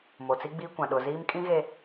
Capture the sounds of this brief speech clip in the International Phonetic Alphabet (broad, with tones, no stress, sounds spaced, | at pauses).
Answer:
m o˨ t͡s i˦ ɡ͡b iː˦ kʷ ã˨ ɗ ʊ˨ z iː˦ m kʼ ĩ˦ ɣ e˨